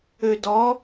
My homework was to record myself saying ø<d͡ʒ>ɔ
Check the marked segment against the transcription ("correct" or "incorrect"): incorrect